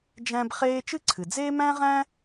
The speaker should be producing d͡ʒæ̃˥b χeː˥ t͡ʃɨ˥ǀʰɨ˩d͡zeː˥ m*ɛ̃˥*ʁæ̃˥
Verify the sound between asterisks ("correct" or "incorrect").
incorrect